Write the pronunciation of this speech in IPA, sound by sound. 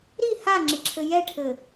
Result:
ɾ i h a ŋ͡ǁ ɪ ǁʰ ɘ j ɛ ʈʰ ɘ

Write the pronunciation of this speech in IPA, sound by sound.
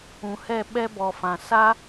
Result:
ũ˨ h ɛ˦˨ ɓ ɛ˦ b ɔ˨ f ã˨ s a˦

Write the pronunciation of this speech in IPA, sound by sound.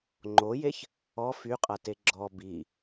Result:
ŋ͡ǃ o j e ç | ɔ f y qʼ a t e ɡ͡ǁ ɔ b i

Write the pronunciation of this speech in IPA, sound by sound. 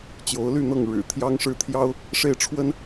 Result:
t͡ɕ j o˨˦ ʊ̯ l y˥˨ n̪ ɤ˥˨ ŋ ɻ ɻ̩˨˩ t̪ʰ j ɑ˦ ŋ ʂ ɻ̩˦ t̪ʰ j ɑ˦ ʊ̯ | ʂ e˥˨ ɪ̯ ʈ͡ʂʰ w ə˦ n

